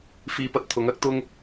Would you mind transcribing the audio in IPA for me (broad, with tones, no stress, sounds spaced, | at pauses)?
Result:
f iː˧ p ɐ˧ t̚ t̪ʰ ʊ˨˧ ŋ ɐ˥ k̚ t̪ ʊ˥ ŋ